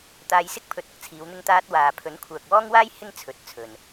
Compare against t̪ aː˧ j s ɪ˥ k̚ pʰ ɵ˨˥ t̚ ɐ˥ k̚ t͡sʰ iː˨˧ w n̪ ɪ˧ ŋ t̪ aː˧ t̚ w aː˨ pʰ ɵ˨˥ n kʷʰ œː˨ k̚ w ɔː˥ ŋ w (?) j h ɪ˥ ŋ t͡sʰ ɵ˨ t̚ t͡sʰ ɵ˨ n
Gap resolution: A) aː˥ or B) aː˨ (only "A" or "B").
A